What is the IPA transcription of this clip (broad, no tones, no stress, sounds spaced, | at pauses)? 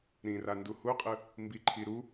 ɾ ĩ r a n d u h u qʼ ɯ | m b i ǃʰ i ɾ u